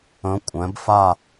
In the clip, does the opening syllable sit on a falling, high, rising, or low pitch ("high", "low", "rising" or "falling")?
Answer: rising